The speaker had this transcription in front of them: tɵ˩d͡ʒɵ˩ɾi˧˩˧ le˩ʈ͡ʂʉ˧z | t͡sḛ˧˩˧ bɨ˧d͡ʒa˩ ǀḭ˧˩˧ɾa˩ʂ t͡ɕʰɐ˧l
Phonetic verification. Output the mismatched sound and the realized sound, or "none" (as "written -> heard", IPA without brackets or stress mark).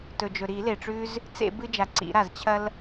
ʂ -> z